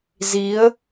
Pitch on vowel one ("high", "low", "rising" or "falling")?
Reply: rising